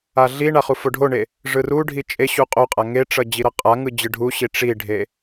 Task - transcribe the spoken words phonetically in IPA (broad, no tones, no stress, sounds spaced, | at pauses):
a ɮ i ɳ a χ u f o ɖʱ o ɳ e | ʐ ɯ r u ɖʱ i t͡ʃʼ e ɕ u qʼ o qʼ a ŋ e ʈ͡ʂ ʌ d͡ʑ i ɾ ʌ qʼ a ŋ ɯ d͡ʑ ɯ ɖʱ u ɕ i ʈ͡ʂ i ɖʱ e